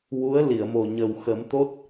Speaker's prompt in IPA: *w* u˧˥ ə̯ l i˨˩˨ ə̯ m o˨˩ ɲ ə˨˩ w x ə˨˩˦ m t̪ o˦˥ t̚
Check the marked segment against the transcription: correct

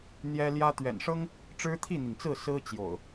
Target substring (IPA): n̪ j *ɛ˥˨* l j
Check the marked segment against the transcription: incorrect: ɛ˦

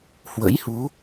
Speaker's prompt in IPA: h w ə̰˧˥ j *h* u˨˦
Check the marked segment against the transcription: correct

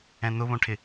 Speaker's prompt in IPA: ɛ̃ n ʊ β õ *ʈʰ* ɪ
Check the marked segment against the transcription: correct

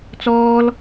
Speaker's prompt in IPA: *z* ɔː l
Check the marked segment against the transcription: incorrect: t͡s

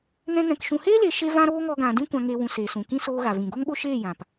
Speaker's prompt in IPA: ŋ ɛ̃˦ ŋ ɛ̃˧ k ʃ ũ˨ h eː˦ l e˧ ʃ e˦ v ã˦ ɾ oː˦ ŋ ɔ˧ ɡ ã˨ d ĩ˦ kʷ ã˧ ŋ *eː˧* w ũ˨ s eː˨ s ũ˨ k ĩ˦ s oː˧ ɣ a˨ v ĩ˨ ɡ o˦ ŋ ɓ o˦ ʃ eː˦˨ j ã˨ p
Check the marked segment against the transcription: correct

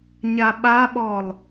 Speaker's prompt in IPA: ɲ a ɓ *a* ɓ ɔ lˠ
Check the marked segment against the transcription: correct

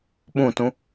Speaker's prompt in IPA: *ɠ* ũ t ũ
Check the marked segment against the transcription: incorrect: ɓ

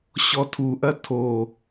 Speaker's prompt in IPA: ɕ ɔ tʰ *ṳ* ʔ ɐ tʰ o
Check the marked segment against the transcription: incorrect: u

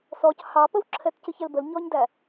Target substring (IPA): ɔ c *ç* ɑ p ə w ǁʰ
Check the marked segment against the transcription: incorrect: h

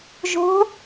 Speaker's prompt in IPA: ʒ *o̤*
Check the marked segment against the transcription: correct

